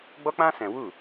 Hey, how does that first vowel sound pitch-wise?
high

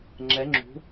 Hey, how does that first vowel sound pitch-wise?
rising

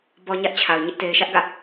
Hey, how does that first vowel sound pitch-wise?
low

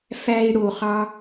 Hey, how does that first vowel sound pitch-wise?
high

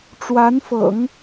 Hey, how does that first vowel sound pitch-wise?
rising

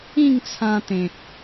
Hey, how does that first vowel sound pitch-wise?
falling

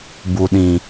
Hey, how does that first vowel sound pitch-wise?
low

